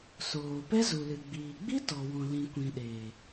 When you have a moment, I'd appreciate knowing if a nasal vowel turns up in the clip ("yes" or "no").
yes